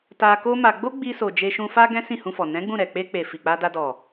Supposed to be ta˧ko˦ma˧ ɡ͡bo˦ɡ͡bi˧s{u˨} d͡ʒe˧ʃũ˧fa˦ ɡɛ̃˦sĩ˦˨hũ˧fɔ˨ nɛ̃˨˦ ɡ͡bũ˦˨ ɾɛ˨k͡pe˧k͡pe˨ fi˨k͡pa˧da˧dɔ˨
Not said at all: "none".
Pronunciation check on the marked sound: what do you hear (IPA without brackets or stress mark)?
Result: o˨